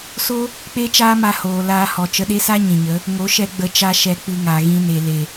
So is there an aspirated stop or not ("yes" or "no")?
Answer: no